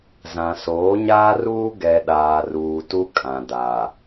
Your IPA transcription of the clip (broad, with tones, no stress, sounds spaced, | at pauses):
z ã˨ s oː˨˦ ɲ aː˦ r uː˦ ɡ ɛ˨ ɗ aː˨ r uː˨ t u˦ kʼ ã˨ d a˨